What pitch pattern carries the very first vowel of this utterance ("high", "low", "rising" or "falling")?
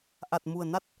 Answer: low